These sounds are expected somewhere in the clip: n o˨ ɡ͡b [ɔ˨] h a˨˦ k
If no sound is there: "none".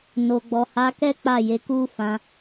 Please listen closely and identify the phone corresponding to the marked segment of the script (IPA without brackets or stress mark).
ɔ˨